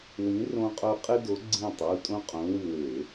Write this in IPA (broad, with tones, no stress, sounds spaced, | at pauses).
w ĩ˨˦ r õ˦ qʼ o˦ qʼ ɨ˦ d o˨˦ ɡ͡ǀ ĩ˦˨ tˤ u˩˧˩ tʼ õ˦ qʼ õ˨˦ w ɨ˦˨ w e˧˩˧